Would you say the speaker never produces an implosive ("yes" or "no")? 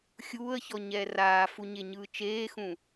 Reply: yes